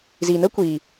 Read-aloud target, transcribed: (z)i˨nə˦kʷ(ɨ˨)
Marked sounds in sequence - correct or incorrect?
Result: correct, incorrect

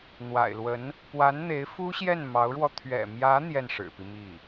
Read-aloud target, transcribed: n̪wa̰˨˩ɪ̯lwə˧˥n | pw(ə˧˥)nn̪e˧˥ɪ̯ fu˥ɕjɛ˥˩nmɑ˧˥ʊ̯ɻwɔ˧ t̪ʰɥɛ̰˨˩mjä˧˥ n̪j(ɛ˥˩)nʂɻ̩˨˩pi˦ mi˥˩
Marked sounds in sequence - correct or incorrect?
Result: incorrect, correct

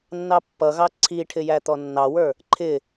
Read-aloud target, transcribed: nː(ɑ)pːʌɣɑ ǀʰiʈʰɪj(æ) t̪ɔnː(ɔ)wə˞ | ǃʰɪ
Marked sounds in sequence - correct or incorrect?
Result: correct, correct, incorrect

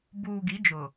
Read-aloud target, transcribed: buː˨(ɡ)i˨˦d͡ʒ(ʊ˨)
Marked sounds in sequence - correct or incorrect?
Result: correct, correct

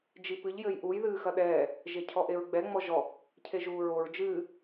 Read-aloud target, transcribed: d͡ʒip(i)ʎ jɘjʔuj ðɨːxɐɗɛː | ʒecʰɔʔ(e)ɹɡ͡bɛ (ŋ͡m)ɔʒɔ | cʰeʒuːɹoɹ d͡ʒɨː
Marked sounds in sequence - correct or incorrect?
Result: incorrect, correct, correct

